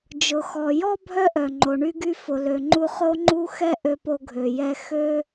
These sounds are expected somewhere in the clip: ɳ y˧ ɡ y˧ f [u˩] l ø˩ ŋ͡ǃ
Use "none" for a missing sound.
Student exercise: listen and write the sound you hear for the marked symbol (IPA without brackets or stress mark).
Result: ʊ˩